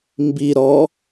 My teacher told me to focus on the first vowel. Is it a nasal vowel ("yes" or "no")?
no